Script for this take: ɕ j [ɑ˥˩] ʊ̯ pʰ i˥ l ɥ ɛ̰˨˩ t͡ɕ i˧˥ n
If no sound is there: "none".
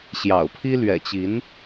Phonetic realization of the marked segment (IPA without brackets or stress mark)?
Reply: ɑ̰˨˩